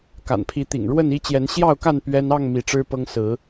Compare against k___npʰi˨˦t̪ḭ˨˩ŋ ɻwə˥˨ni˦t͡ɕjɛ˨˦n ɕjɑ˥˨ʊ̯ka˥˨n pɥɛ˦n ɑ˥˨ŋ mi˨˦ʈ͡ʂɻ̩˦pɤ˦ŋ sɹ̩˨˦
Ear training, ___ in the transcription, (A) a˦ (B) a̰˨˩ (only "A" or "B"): B